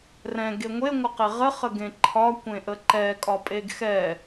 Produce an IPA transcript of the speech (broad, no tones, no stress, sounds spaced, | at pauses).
r ɛ̃ ɡ e ŋʷ e ŋʷ ə q e ʁ ə χ ə ɡ ẽ ǃʰ ɒ kʷ ẽ ʔ ə ǃ ɛ kʼ ɒ pʼ e ɡ x ɛ